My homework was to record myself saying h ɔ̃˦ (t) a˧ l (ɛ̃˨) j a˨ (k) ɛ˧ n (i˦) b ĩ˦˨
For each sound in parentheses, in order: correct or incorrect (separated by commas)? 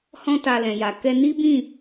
correct, correct, correct, correct